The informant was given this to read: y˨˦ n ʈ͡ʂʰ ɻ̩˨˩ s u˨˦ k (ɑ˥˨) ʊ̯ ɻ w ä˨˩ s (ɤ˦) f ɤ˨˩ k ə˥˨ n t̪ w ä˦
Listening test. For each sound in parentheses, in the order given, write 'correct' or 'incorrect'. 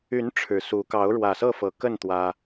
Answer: incorrect: ɑ˨˦, incorrect: ɤ˥˨

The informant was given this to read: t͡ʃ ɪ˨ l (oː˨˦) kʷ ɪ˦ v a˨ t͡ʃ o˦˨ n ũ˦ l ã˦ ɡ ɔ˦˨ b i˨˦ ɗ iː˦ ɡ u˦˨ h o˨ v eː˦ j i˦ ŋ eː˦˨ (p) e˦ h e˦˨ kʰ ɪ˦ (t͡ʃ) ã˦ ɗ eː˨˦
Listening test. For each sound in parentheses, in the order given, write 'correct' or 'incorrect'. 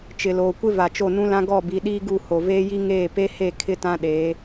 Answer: incorrect: oː˨, correct, incorrect: t

